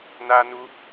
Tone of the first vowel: high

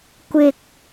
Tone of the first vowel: low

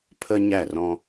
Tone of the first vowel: high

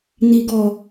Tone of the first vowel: low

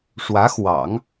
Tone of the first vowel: rising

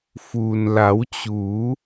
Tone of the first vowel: low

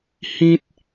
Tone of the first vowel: high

